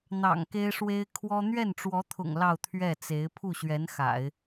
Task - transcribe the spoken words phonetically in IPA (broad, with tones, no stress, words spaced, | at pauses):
n̪ɑ̰˨˩ŋke˥ɪ̯ʂwe˥ɪ̯ kʰwɔ˥ n̪ɥɛ˥˩nʈ͡ʂwɔ˧˥t̪ʰʊ̰˨˩ŋ lɑ˥˧ʊ̯t̪ʰɥɛ˥˩t͡se˧˥ɪ̯ pʰu˥˩ɕɥɛ˧˥n xa̰˨˩˦ɪ̯